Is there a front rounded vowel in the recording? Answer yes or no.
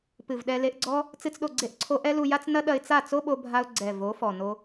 no